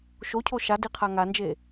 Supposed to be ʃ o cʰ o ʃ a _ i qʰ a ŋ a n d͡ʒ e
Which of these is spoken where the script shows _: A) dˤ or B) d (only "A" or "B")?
B